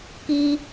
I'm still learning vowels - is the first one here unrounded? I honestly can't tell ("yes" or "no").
yes